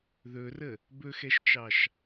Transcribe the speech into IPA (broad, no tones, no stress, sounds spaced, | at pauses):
ð ɵ r ə | b ɵ x ɛ ʃ t͡ʃ ɑ ʃ